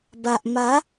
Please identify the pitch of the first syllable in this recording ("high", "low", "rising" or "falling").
low